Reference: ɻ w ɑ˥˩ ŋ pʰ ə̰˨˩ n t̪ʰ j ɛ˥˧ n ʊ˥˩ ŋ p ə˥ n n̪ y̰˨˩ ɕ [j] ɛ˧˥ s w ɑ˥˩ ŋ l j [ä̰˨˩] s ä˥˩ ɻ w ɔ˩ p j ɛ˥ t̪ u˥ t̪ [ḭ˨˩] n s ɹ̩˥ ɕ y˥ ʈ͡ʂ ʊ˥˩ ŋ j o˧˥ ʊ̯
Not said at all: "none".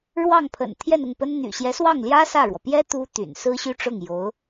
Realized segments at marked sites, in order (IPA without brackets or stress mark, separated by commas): j, ä˥, y̰˨˩